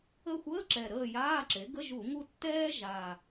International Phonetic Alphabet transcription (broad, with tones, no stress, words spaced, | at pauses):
ə˦˨xʷəː˧˥˧ǁɛ˨˩ ɾəː˦˨jaː˧˥˧ǁe˩˥ ɡə˧˥˧ʒu˧˩˧ŋu˦˨ tːɛː˥ʒa˨˩